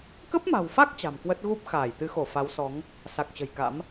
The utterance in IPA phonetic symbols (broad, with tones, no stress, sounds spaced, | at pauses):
k ə˦˥ p̚ m a̤˨˩ w f a˦˥ k̚ t͡ɕ a̤˨˩ m k w ə˦˥ t̚ ɣ u˦˥ p̚ x aː˧˩ j t̪ ɨ˨˦ x o˧˩ f a˨˦ w s ɔ˨˦ ŋ | s a˨˩ k̚ t͡ɕ ə̤˨˩ j k a̰˧˥ m